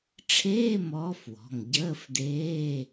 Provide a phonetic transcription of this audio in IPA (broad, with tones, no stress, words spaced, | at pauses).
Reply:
ʈ͡ʂʰeː˧˥˧ mɔː˧˥fwɔ̤˩˧˩ŋ ɟəː˧˥˧fdeː˧˥˧